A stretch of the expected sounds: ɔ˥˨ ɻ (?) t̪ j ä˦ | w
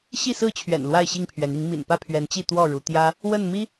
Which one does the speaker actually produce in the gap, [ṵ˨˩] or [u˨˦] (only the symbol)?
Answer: u˨˦